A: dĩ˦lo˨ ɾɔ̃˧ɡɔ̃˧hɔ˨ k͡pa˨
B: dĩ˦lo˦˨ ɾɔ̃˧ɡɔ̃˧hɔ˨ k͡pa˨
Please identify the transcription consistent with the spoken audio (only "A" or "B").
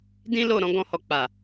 B